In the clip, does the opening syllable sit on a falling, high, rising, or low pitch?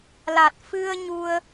low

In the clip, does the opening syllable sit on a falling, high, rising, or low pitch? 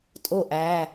falling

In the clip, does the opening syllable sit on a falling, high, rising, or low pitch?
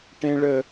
high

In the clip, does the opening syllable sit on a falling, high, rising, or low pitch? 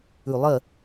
low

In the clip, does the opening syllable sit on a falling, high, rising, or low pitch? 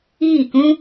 falling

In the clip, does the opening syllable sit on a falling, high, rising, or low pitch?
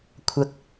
low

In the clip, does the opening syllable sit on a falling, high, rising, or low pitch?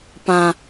high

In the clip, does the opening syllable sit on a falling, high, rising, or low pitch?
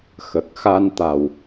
low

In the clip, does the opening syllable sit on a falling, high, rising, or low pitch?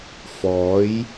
rising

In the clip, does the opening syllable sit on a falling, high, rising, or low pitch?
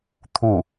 falling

